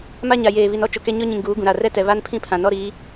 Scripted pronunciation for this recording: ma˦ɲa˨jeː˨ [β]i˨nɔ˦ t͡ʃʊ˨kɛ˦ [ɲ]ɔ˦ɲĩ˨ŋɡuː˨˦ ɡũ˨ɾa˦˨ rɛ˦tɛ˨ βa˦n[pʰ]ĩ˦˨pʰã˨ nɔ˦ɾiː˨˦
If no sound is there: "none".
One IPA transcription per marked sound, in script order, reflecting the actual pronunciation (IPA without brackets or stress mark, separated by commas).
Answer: β, ɲ, pʰ